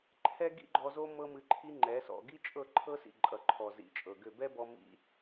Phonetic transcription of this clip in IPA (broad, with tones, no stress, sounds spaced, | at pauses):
ǃʰ ɛ˧ ɡ ḭ˦ ɡ͡ǃ ɔ˧ z o˦ m ɤ˦ m ɨ˧ ǃʰ i˦ ŋ͡ǃ ɛ˨˦ s ɔ̰˨ ɡ i˦ t͡ʃʼ ɤ˦˨ ǃʰ ɤ˦ s ḭ˨ ǃʼ ʌ˨ ǃʰ ɔ˨ z ḭ˨˦ t͡ʃʼ ɤ˨ ɡ ʏ˦˨ b ɛ˦ b ɔ˧ m ḭ˧